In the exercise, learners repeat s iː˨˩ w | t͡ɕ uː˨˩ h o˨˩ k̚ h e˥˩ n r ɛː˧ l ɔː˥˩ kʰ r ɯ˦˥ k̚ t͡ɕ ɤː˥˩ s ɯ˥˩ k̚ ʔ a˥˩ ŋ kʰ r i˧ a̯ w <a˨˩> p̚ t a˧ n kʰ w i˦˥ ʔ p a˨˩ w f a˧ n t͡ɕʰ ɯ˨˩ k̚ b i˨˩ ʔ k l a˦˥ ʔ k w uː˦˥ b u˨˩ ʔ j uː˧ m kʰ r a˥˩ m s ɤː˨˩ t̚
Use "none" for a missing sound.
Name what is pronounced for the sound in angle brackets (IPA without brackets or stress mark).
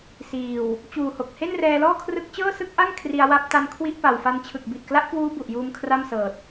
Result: a˦˥